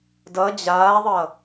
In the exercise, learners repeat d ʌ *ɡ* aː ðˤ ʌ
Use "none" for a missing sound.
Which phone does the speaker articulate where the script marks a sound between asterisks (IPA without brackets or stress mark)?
d͡ʑ